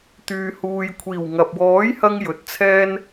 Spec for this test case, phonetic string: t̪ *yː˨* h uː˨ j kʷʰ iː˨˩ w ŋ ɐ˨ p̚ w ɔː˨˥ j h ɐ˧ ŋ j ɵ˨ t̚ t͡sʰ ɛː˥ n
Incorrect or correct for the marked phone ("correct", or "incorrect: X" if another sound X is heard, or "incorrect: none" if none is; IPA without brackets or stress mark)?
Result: correct